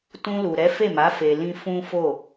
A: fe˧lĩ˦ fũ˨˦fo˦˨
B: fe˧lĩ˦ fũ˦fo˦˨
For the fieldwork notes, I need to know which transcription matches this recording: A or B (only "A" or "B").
B